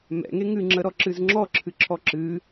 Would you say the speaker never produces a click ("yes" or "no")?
no